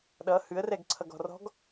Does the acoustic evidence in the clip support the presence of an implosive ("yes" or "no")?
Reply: yes